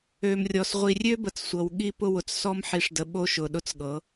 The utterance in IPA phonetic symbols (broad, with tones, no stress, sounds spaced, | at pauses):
ø˨ m rʲ ɔ˨ s ʁʷ i˨ rʲ ø˦ b ə˨ t͡s sʷ ɤ˨ w ɠ i˦ p ʊ˦ w ʊ˨ t͡s s ɔ˦ m ħ i˨ ʂ d ə˨ ɓ o˦ ʃ ʊ˨ ɗ ʊ˦ t͡s ɠ ɤ˨˦